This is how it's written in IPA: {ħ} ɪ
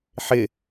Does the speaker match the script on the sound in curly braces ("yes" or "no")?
yes